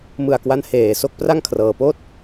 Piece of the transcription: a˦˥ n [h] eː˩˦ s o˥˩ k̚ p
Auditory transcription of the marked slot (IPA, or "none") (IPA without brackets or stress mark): h